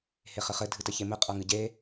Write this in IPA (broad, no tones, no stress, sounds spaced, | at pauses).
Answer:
h e χ ɘ χ ɘ dʱ ɨ t ɘ ç e m ɘ qʼ ɐ ŋ ɨ ɟ e